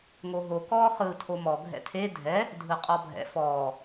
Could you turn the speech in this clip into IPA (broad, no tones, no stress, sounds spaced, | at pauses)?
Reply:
ŋ o ɦ o k ɔː χ ɯː tʰ o m ɔ ɡʱ ɛ̰ tʰ e dʱ ɛ | dʱ ɯ qʼ ɔ bʱ ɛ̰ f ɔː